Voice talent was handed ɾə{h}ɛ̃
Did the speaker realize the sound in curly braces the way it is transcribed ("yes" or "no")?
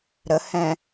yes